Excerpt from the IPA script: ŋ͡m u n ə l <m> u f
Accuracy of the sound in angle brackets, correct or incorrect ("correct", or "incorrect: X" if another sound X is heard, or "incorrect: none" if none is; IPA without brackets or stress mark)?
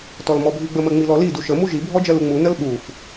incorrect: ɓ